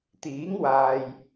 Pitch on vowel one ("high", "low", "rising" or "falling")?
rising